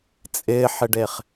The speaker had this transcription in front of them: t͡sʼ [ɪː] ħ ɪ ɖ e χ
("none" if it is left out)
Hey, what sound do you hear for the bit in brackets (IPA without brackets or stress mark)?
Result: ɪː